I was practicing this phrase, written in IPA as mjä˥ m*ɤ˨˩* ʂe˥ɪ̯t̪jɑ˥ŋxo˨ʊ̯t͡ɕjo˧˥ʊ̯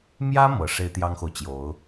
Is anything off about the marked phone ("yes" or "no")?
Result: no